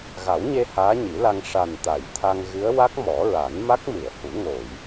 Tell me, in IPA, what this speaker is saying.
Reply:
ɣa˨˩˦wɲe˧ haː˧˥ɲi˨˩˦la˧ŋ ʂa˨˩nt̪a˨˩˨jt̪ʰa˧ŋɣɨ˧˥ə̯ wa˦˥k̚mɔ˨˩˦ɹa˨˩˦n ma˦˥k̚mɨ˨˩˨ə̯hu˨˩˦ ŋo˨˩˨j

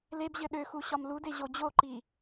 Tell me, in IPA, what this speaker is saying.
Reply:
lebʑɘ ɗøxu ɕɒmlude ʑod͡ʑoǃi

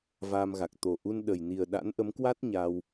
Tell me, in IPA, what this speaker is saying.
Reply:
vaː˧mɣa˨˩k̚ t̪o˨˩ʔu˧n ɗə˨˩jni˨˩ə̯ ɗa̰˧˥nʔə˨˦mkwa˦˥t̚ ɲa˧w

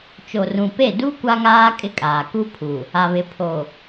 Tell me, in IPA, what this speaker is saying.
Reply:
t͡ʃo˨rũ˨pe˦˨ du˦ kʷa˦ŋaː˦ kʼɪ˦kʼaː˨ ku˦pʰu˨ | a˨βɪ˨ pʰo˨

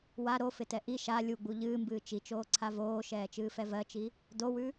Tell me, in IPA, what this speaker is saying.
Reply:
wa ɾofɪtɛ ʔi ʃa lʲuɡ͡bu ʎɨːmbɨː t͡ʃit͡ʃoːǀʰa voːʃɛːt͡ʃɨːfɛ vɜt͡ʃi | dowʉ

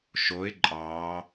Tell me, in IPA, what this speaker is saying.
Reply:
ʃoɪ̯ ǃʼɑː

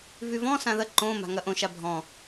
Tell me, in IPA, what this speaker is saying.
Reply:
vyvɔ̃ sãðɐ ǃõː ma̤ŋɐʔõ ʃabʱɔ̃

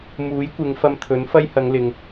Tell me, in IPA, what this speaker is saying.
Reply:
muː˨˥jkʷɪ˨˧ŋ fɐ˧mt̪ʰɵ˨˥n fɐ˥jhɐ˨˧ŋlɪ˨ŋ

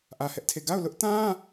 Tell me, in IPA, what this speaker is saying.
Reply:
ʔä˦hɛ˦ʔtʰe˦˨ ɡa˦˨ʊ̯lʊ˦ʔtã˦

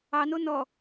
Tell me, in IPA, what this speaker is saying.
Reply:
ɑno nɔ

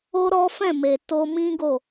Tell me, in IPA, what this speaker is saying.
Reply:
o˦ɾɔ˦ fɛ̃˦˨me˨ to˧mĩ˦ɡo˦˨

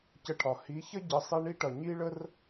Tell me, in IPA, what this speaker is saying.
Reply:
cə˧ʈʰɒ˨ hi˨˦çə˦ ɟə˨˦sˤi˧ɳi˦ʈʌ˨ ɲi˦ɭə˦r

